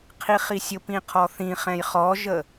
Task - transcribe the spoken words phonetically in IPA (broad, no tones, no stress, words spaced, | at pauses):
qʰiχisʲʊpĩ qʰɔθĩχɛ̃j χɔʒə